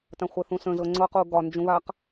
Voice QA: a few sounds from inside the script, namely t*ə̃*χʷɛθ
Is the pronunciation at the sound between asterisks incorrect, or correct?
incorrect